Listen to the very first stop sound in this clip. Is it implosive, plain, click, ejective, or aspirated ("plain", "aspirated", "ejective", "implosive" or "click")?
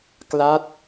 plain